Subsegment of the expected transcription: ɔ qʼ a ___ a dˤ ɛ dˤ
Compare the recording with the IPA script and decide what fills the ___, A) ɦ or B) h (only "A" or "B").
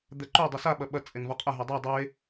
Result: A